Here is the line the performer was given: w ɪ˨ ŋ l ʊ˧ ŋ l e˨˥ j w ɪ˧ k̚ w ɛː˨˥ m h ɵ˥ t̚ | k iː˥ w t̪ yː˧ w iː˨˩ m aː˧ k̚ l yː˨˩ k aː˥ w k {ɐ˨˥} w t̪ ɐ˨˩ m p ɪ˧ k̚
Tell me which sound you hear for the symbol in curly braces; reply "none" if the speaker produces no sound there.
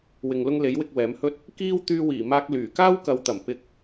ɐ˨˧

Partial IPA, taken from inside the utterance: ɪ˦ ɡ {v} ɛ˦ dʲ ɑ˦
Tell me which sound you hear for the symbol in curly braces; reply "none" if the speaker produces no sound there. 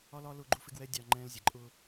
w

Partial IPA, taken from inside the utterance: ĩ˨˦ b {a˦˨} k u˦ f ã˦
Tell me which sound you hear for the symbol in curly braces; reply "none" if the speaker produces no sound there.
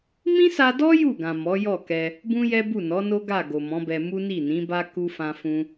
a˦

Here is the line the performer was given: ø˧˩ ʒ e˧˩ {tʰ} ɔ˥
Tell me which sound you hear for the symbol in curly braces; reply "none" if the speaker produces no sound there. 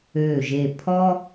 pʰ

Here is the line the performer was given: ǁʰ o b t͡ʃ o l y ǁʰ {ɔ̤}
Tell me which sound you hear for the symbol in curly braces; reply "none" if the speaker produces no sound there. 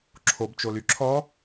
ɔ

